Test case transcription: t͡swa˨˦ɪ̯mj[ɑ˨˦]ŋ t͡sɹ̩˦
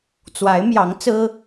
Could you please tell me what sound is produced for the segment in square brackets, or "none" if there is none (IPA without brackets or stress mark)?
ɑ˨˦